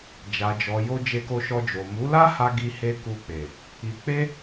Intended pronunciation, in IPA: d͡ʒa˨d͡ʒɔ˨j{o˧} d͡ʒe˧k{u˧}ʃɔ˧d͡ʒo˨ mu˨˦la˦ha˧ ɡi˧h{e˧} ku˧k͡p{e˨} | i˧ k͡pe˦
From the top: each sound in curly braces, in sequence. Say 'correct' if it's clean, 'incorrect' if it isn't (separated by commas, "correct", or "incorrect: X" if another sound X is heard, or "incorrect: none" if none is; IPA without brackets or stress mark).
correct, incorrect: o˧, correct, correct